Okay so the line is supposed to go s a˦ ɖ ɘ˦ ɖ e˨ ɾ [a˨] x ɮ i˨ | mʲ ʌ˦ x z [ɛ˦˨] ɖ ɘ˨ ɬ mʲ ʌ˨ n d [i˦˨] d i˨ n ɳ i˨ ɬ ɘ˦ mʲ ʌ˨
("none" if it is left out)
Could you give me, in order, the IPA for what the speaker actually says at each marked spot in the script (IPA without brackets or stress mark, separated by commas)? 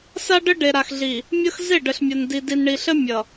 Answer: a˨, e˦˨, i˨